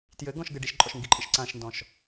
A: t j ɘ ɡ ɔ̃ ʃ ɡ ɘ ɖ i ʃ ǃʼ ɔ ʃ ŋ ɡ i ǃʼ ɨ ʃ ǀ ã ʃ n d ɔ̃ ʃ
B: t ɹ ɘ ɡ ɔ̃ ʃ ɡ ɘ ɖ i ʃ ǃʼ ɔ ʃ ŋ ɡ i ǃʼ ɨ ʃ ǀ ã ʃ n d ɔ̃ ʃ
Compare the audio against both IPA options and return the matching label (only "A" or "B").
A